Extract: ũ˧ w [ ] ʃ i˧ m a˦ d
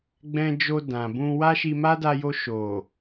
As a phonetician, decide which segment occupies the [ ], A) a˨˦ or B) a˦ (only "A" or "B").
B